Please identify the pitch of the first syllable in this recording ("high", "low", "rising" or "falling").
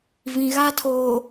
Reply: low